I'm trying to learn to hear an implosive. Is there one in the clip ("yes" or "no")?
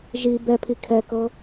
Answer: no